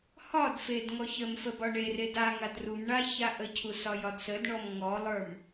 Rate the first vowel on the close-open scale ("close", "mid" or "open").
open